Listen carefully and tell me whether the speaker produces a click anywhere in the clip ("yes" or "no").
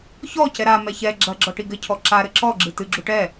yes